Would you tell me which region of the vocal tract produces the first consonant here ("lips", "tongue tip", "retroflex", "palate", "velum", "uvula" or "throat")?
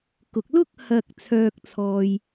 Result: velum